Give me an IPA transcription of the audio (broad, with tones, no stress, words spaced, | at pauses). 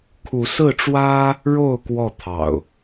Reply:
kʰu˨˦sɹ̩˥˨ʈ͡ʂwä˦ | ɻo˥˨ʊ̯ kwɔ˥˨t̪ʰɑ̰˨˩ʊ̯